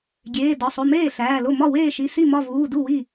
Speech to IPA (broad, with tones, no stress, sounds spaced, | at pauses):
ɡʲ eː˩˧˩ d ɒ˩˧˩ sˤ o˩˧˩ m eː˥˩ ɬ æː˩˧˩ l o˥˩ m ɒ˥˩ w eː˥˩ ʃ i˩˧˩ s i˥˩ m ɒ˥˩ v uː˩˧˩ d u˥˩ w i˥˩